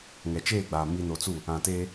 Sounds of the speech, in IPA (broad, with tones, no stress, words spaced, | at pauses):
ŋɛ˨t͡ʃeː˦˨ɡ͡baː˨ mi˨no˨t͡su˦˨ | ã˨teː˦